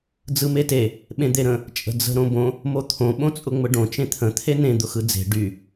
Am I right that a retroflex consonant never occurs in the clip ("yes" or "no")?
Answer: no